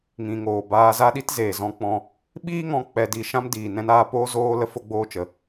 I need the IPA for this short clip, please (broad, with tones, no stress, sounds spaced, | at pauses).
ŋ ĩ˨ ŋ oː˨ b aː˧ z a˦ ɗ i˦ t z eː˨ z ɔ̃˧ k͡p ɔ̃˧ | ɓ iː˦ ŋ ɔ̃˧ k͡p ɛ˧ d i˧ ʃ ã˦ m d iː˨ n ɛ̃˧ n aː˧ p oː˦ z oː˦ l ə˦ f o˦ ɡ͡b oː˦ t͡ʃ ə˧